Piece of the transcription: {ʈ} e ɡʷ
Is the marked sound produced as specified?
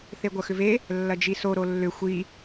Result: no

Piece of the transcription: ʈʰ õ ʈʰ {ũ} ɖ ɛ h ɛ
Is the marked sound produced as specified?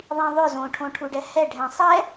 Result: no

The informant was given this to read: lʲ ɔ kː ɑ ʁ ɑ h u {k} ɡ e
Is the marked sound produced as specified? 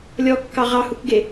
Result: yes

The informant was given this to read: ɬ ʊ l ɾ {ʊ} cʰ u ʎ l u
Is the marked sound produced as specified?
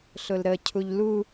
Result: no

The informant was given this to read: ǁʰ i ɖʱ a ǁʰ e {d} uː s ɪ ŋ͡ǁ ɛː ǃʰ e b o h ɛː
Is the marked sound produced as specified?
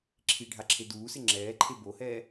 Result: yes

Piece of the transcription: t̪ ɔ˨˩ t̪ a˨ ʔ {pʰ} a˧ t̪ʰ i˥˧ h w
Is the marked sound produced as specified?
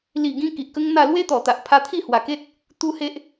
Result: yes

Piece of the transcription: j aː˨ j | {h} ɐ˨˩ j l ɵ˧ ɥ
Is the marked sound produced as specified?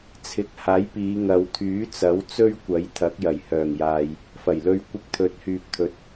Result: no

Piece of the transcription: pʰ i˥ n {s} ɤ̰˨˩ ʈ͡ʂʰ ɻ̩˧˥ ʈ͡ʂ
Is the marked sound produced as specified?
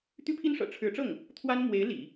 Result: no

